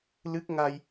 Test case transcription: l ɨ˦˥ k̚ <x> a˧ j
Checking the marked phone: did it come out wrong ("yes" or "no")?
yes